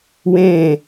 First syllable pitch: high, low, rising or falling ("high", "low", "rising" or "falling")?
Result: falling